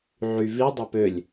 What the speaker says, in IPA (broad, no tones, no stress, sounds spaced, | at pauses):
ʕ y v i dˤ æ p ø lʲ